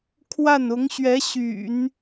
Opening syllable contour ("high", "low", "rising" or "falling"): falling